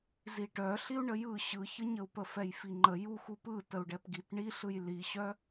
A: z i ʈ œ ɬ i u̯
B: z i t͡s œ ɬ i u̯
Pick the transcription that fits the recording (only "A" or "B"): A